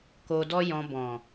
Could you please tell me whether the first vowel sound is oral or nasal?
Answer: oral